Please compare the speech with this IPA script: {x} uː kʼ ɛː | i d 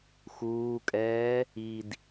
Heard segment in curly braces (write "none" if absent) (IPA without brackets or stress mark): x